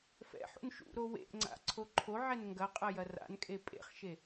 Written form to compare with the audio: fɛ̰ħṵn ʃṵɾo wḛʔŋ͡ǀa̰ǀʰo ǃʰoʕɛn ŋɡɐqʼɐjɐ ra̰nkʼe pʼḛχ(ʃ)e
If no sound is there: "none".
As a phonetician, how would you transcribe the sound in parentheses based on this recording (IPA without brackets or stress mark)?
ʃ